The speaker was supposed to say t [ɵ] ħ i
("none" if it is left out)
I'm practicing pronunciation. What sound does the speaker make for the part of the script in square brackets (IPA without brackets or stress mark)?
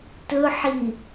ɵ